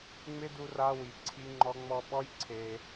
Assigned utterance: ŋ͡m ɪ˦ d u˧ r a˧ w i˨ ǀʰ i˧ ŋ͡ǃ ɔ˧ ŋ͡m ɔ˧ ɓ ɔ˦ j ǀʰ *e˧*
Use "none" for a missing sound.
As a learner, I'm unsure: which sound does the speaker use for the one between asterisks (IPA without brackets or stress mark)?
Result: e˧